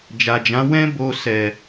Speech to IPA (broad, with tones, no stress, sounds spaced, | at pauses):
d͡ʒ a˨ d͡ʒ ã˨˦ w ɛ̃˦ b o˧ s ɛ˨